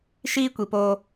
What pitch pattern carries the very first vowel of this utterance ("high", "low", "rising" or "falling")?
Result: high